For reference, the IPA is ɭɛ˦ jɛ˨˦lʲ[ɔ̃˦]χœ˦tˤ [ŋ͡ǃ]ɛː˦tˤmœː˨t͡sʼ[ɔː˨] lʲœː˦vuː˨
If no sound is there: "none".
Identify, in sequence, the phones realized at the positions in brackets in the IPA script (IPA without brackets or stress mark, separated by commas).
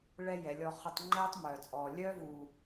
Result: ɔ˦, ŋ͡ǃ, ɔː˨